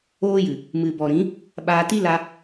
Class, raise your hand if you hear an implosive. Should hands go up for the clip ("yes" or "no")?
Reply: yes